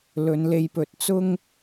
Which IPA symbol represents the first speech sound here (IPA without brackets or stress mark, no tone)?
l